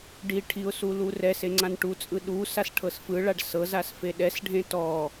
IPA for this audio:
ɖ i ʈʰ i ʊ̯ s u l u r ɛ s e ŋ͡ǀ ã n ʈ u t͡sʼ ɯ ɗ u s a s ʈʰ ɤ s f ɯ ɭ a ɖ s ɤ z a s f e ɗ ɛ s ɖʱ ẽ t ɔ

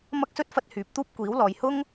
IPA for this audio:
m ɐ˥ k̚ s ɵ˥ t̚ f ɐ˥ t̚ h yː˨˥ p̚ t̪ uː˥ p̚ kʷ iː˨˥ w l ɔː˨ j h ʊ˥ ŋ

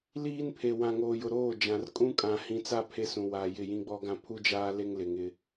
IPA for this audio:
l iː˦ n pʰ e˨ w ã˨ ŋ oː˨ j ʊ˨ ɾ oː˦˨ d͡ʒ ã˨ r kʼ ũ˦ kʼ ã˨ h ĩ˨ t͡s a˦˨ pʰ e˦ s ũ˨ w a˨ j ɪ˦˨ j ĩ˦ ɡ͡b ɔ˦ ɡ ã˦ pʰ u˦ d͡ʒ aː˦ l e˦ ŋ l ɪ˨ ŋ ɪ˦

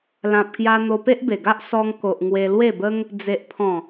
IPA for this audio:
l ã˨ p̚ k j a˧ n̪ o˧ p e˦ ʔ b e˨˩ ɡ a˦ ʔ s ɔ˧ ŋ k o˨ ʔ ŋ w e˧ l w e˥˧ b ə˦ ŋ | d͡z e˨ ʔ pʰ ɔ̃˨˩

